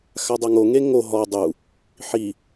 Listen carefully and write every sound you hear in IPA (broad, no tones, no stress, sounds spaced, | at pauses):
x a dˤ a ŋ o ŋ e ŋ o ɦ ɔ dˤ u | ħ i